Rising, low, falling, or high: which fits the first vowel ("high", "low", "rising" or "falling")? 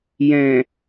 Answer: low